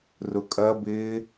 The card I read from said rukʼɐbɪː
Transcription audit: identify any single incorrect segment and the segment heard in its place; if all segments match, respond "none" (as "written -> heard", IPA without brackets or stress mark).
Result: u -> ʊ